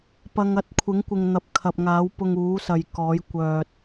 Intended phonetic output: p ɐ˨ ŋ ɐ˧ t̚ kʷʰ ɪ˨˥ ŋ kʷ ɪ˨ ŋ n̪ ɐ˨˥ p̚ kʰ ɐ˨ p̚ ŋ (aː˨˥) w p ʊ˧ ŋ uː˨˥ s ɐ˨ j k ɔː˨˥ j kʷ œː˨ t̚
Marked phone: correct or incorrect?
correct